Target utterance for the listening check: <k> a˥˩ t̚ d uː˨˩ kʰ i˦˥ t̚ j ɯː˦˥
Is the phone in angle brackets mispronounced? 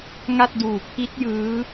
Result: yes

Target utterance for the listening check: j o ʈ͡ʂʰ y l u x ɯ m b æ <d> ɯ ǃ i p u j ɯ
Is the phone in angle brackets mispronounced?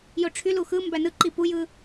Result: yes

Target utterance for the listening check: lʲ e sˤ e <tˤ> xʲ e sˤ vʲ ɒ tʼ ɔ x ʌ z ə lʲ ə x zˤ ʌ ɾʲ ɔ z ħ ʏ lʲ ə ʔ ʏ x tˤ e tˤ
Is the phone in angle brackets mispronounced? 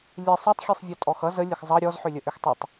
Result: no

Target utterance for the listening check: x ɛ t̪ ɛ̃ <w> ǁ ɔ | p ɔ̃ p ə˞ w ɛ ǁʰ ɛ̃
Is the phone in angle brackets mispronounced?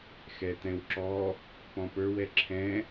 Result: no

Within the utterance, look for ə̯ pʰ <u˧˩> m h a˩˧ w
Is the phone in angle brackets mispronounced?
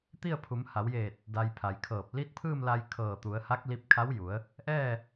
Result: yes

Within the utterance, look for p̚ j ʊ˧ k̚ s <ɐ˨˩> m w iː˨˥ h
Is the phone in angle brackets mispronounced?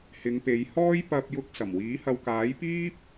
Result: no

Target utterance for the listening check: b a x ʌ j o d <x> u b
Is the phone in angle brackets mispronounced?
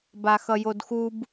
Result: no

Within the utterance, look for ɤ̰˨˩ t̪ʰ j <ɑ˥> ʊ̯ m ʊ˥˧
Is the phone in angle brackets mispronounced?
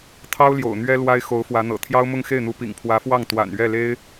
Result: no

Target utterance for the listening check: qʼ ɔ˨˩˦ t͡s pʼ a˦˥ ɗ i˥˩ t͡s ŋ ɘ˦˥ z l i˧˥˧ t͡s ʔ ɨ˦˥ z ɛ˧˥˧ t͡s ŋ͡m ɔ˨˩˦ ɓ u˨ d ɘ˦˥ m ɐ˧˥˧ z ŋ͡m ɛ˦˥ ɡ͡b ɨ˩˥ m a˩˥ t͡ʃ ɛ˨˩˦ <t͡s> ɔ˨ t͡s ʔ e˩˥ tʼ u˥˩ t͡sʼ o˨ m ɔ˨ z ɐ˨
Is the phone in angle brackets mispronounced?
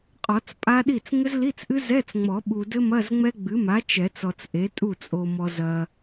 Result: no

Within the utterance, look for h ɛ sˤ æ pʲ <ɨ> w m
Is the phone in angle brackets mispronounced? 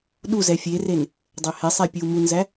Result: yes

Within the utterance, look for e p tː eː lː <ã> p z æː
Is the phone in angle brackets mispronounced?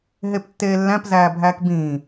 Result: yes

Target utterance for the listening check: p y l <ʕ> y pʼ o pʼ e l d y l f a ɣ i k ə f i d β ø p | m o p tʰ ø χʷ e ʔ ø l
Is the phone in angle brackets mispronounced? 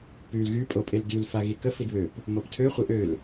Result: yes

